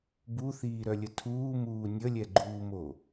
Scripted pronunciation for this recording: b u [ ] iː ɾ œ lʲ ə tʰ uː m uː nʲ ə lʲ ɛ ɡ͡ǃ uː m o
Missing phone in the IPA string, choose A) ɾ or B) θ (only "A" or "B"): B